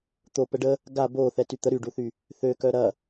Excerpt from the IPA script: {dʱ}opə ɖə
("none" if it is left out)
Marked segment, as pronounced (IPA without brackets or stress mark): t̪